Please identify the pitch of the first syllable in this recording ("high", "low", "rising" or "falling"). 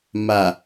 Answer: low